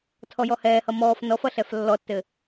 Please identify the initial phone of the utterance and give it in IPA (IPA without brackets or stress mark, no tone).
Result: tʰ